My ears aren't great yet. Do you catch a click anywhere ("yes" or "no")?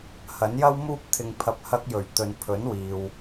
no